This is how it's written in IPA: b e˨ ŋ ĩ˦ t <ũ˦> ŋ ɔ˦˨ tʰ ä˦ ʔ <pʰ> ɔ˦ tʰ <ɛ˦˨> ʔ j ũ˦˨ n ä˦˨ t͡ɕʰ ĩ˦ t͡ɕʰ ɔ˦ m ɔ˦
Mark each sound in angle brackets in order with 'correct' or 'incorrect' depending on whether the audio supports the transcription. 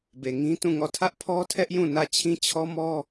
incorrect: ũ˦˨, correct, incorrect: ɛ˦

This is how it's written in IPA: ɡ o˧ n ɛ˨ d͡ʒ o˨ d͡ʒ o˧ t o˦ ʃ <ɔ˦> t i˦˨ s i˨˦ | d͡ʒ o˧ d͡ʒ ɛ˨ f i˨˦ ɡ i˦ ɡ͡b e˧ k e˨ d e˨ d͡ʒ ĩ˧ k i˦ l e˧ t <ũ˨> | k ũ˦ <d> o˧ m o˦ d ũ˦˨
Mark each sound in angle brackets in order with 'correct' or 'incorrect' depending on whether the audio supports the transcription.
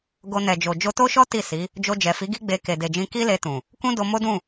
correct, correct, correct

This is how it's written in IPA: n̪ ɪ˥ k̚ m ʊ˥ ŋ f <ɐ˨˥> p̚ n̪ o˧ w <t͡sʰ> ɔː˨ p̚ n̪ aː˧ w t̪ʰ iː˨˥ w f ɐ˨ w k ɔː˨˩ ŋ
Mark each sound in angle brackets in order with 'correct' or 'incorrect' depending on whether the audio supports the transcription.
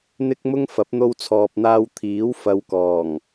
correct, correct

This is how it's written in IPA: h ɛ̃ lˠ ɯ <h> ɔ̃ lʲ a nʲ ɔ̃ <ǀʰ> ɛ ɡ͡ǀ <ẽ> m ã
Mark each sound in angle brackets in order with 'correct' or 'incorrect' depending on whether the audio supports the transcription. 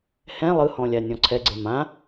correct, correct, incorrect: e

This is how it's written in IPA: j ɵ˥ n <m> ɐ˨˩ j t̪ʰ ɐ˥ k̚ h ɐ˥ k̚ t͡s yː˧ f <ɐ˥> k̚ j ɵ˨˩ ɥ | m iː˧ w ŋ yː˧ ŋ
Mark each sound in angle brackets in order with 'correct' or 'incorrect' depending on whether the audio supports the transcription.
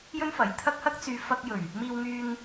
incorrect: f, incorrect: ɐ˧

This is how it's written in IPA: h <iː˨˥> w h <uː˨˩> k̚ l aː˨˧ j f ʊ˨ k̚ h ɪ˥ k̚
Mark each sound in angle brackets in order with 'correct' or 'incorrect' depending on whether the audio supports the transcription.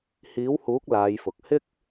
correct, incorrect: uː˨˥

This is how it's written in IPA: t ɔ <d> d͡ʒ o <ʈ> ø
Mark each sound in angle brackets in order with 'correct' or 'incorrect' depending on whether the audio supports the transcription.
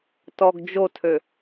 incorrect: ɡ, incorrect: tʰ

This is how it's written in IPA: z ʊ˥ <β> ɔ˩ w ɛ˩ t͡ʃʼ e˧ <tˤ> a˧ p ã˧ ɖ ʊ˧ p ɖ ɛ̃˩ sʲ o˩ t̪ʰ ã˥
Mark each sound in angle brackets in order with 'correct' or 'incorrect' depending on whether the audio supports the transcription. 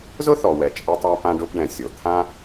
incorrect: θ, correct

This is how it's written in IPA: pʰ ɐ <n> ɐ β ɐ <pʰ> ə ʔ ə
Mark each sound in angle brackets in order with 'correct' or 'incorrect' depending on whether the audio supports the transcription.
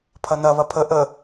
correct, correct

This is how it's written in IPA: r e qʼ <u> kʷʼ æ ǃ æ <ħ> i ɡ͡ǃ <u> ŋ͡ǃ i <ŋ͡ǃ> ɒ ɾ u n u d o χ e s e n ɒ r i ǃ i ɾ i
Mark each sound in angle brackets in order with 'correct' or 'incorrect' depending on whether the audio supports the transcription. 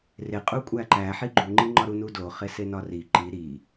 correct, correct, correct, correct

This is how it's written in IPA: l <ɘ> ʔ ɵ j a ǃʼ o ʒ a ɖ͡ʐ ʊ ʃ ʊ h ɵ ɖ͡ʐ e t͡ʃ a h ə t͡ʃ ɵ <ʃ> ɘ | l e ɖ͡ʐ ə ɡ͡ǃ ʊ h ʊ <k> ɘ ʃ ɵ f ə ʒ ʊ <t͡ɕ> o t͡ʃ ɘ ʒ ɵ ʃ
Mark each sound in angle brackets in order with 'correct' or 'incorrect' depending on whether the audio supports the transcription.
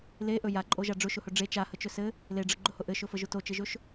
incorrect: e, incorrect: s, incorrect: ʔ, incorrect: t

